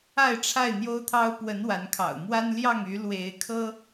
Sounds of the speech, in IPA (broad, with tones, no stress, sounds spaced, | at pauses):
a˥˨ ɪ̯ ʈ͡ʂʰ a˥˨ ɪ̯ n̪ j o˦ ʊ̯ t̪ʰ ɑ˦ ʊ̯ p w ə˨˦ n w a˨˦ n kʰ ɑ̰˨˩ ʊ̯ m w a˦ n l j ɑ˥˨ ŋ y˨˦ l w e˨˦ ɪ̯ kʰ ɤ˦